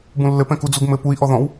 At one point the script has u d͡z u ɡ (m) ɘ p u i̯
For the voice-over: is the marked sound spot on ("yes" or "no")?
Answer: yes